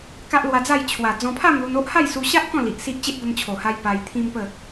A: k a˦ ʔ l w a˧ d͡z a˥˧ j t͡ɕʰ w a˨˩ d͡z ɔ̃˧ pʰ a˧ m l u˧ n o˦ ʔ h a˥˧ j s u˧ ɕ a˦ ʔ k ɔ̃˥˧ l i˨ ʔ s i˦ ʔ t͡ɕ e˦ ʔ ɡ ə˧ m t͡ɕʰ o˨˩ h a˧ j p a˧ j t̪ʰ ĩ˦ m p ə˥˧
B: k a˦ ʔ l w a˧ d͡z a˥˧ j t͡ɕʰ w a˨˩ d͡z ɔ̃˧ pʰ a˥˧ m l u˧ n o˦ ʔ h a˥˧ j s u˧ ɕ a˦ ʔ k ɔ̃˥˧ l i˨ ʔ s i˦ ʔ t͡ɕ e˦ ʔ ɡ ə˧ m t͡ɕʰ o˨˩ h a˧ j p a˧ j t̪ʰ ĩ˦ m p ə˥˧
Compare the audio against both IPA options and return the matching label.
B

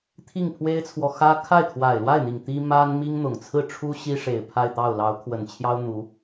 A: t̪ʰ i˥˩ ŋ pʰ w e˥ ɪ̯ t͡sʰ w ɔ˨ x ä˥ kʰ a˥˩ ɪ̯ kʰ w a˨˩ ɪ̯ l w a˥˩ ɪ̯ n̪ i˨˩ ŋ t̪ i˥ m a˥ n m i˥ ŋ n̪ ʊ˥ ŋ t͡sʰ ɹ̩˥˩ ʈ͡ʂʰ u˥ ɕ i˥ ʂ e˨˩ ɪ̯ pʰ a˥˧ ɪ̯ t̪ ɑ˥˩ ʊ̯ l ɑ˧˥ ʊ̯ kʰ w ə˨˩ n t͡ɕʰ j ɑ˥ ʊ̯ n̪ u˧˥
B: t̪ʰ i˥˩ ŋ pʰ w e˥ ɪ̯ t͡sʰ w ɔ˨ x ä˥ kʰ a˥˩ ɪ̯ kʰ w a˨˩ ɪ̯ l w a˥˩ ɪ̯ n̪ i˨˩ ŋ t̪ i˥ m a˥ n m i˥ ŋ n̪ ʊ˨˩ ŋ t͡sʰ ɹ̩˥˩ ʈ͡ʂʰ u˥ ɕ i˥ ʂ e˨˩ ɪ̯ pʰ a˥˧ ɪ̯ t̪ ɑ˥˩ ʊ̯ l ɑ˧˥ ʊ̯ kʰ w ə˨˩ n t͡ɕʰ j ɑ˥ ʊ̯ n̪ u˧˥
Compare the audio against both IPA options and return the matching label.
B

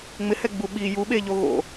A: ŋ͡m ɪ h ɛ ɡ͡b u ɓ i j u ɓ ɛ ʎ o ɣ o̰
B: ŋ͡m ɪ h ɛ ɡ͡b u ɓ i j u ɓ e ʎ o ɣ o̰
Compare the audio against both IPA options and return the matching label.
B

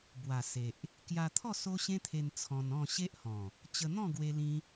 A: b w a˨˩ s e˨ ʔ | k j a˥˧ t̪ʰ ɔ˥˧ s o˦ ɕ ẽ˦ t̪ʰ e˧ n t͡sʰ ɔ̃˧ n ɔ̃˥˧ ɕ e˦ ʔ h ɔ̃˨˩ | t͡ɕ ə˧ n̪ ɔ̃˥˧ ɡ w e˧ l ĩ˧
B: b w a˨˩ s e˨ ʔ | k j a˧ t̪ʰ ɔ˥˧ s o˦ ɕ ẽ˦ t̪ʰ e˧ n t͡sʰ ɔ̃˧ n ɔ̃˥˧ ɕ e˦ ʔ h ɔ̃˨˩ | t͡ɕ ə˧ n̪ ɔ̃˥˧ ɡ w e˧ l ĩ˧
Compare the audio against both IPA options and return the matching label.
B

